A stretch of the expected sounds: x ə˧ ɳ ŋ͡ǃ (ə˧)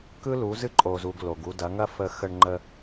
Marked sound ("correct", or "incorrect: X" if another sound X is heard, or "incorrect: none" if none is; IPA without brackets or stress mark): correct